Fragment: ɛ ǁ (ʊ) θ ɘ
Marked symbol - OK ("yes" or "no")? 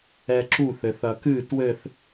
no